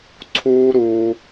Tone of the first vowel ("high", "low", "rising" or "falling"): high